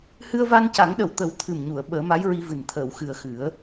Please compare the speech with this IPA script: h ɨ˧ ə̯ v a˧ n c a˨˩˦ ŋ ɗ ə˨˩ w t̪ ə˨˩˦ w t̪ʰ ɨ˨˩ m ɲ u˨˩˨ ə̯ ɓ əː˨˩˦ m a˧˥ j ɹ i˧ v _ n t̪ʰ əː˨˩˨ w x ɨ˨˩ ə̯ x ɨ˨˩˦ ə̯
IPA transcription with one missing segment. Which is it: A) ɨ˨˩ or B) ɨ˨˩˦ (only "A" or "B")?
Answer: A